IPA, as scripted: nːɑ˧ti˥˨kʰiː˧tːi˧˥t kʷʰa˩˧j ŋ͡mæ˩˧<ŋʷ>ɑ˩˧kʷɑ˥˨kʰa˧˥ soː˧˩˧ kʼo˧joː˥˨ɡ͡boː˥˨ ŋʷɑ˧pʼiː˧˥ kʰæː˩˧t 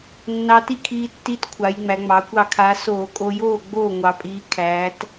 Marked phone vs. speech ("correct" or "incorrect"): incorrect